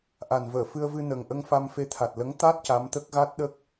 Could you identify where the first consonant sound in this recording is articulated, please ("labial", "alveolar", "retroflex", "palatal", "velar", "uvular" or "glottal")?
glottal